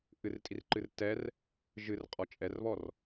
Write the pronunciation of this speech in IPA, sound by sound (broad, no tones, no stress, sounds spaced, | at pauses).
ʔ ɨ r tʼ i r ǃ ɨ r t ɛ r | ʒ ɨ r qʼ ɔ t͡ʃʼ ɛ r β ɔ r